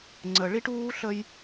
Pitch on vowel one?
low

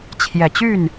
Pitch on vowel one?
low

